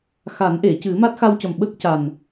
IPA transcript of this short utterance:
xa˨˩˦nʔe˨˩˨cɨ˨˩˦ ma˦˥t̚xa˧wcə˨˩mɓə˦˥k̚ ca˨˩n

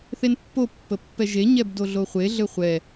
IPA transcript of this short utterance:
θenpːopːəpːɛ ʒeɲɛbdo ɮoχʷe ɮɘχʷɛ

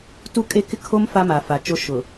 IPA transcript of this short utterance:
tu˦kʼe˦kɪ˦ kʰo˦m fa˦ma˨fa˨t͡ʃo˦ ʃʊ˨

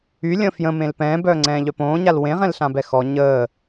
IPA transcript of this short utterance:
ylʲə̃ fjə̃mẽl pɛ̃ːbœːŋ͡ǀɛ̃ːʎœ põːɲal wẽʁɛ̃lɬãbɛ xɔ ɲəː

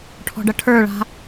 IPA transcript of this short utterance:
ʈʰɔ̤ɖʌʈʰə˞ɭa̤

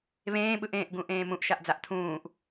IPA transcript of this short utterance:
βẽːɓɯʔẽːʔɡũ ʔẽːmũʔʃaʔd͡zaʔ tʰũːʔ

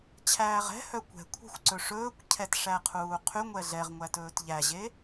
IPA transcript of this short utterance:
t͡ɕʰæːʁɛ̤hœ kʷɛ̤kʷʰɛ̤xʷ ǀɵʂɵːkʷcʰɛt ʂæqʰuːqʰyŋʷɛ ɮɛʁŋʷæ tɵːtʎæʑe

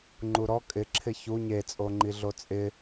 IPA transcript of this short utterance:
ŋ͡ǃuɾɔ kʼɪ ǁʰɪçu ɲet͡sʼoŋ͡ǃi ɮot͡sʼɪ

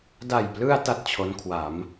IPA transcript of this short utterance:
da˨˩jplɯ˧a̯ ta˥˩t̚t͡ɕʰo˦˥nkʰwa˩˦m

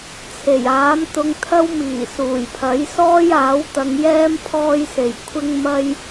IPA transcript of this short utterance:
t͡sʰe˨˩jaː˨˥m t̪ʊ˧ŋt̪ʰɐ˥wmiː˨˩ suː˨˩jpʰɐ˨˥j sɔː˥jaː˨˥w t̪ɐ˨˧ŋjɛː˥m pʰɔː˥jse˨˩j kʷʰɪ˥ŋmɐ˥j

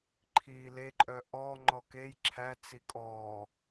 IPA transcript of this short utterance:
ǃʰiːleǃʼœ ʔɔ ŋ͡ǃɔkej ǁʰæ t͡sikʼɔː

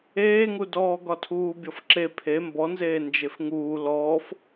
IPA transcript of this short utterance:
eːŋudɔː ɡɒtʰuːbʲɔfǁe pʰe mbɔnzeː nd͡ʒefŋuː lɔːf

